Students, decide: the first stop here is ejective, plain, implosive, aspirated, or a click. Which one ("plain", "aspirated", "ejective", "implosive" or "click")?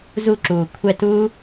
click